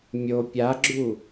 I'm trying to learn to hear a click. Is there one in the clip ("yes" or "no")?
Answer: yes